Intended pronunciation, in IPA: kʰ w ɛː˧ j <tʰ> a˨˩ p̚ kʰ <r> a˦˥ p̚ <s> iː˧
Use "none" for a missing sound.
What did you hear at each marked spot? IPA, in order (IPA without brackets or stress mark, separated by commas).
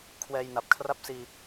n, r, s